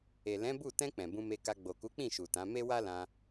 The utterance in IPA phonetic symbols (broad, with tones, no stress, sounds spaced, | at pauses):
e˨ l ɛ̃˨˦ b u˦˨ t ɛ̃˧ k͡p ɛ̃˨ b ũ˧ m e˧ k a˧ ɡ͡b o˨ k u˨˦ k͡p ĩ˦˨ ʃ u˨ t ã˨˦ m e˦ w a˦ l ã˧